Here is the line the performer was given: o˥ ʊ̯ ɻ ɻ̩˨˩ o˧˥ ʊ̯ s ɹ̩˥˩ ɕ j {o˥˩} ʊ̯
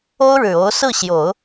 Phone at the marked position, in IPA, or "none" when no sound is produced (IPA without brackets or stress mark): o˨˩˦